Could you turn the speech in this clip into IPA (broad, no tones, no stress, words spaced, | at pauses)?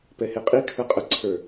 pɛheqʼi kʰə˞qʼə ǀʰə˞